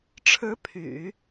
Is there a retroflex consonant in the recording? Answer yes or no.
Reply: yes